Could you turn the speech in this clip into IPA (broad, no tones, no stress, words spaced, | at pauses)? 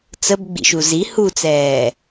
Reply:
t͡səbɡ͡bḭʃu zi hut͡sɛː